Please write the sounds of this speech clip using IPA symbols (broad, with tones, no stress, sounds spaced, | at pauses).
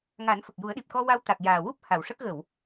ŋ a˨˩˦ n f ə˨˩ k̚ j u˨˩˦ ə̯ ɗ i˨˩ p̚ k ɔ˧ w a˧ w t̪ a˨˩ k̚ j aː˨˩ w u˦˥ p̚ h a˨˩˨ w ʂ ə˦˥ k̚ ɣ ə˨˩˨ w